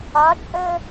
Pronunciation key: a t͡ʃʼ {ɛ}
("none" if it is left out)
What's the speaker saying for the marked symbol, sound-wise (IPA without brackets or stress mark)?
ɛ